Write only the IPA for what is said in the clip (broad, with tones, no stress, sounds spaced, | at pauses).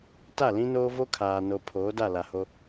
t a˦˨ l ĩ˦ n oː˦ v o˦ kʰ aː˨ n o˨ pʰ oː˨˦ d a˦˨ l a˨ h o˦